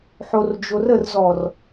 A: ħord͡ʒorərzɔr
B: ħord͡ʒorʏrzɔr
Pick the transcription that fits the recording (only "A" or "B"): A